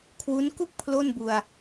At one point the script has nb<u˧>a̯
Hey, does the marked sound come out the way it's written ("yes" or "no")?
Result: yes